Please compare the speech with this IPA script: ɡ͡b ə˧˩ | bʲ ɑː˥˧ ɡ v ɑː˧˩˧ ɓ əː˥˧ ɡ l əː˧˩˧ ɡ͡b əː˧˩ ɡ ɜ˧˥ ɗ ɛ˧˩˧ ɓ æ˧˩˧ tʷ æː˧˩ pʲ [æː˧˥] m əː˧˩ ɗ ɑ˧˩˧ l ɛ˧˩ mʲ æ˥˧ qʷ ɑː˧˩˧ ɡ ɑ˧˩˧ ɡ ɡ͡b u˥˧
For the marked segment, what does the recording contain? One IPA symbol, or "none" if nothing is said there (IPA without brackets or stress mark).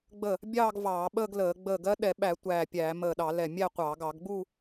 æː˧˩˧